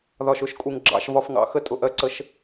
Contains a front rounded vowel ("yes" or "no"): no